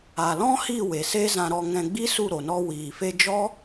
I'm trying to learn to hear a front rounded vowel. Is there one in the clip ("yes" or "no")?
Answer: no